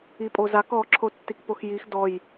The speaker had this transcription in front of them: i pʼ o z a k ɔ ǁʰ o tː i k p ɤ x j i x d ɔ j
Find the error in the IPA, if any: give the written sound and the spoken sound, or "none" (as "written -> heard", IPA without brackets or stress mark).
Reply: ɤ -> o